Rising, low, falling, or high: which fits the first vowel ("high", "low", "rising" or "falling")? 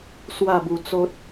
falling